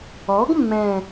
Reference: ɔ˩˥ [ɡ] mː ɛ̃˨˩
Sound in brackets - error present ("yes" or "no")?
no